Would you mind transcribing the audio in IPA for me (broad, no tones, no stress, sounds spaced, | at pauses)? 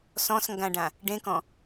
s ɔ̃ s ŋ ɡ ã ɖ ã | ɖ ẽ k ɔ̃